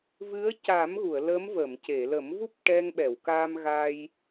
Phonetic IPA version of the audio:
v ɨ˧˥ ə̯ c a˨˩˦ m ɣ u˨˩˨ ə̯ l ə˧˥ m v ə˨˩˨ m c e˨˩˨ l ə˨˩˦ m v u˦˥ p̚ ʈ ɛ˧ ŋ ɓ ɛ˨˩˨ w k a˧ m ɣ a˧ j

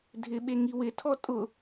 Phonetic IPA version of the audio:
dʱ ɪ ɓ e ŋ i w ɪ tʰ ɔ tʼ ʊ

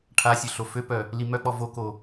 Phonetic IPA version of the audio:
ʈʰ a sʲ ø ɬ o f ø p œ | l i m œ k͡p ɔ v o k o

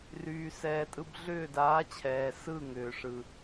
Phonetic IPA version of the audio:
r yː˨ s ɛː˨ tʼ ɯ˧ b ɮ ʏː˦˨ d aː˨˦ t͡ɕʰ ɛː˨ s ɯ˦˨ ŋ ʏː˨ ʂ ɯ˨

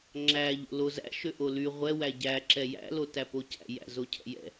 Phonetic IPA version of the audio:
ŋ͡ǁ æ ʎ o̰ l o z æ̰ ʃ ø ʔ o l y ʁʷ ɛ w æ ɟ æ ǁ ɛ j æ̰ l o t æ p o c æ̰ j æ̰ z o cʰ ɛ̰ j ɛ̰

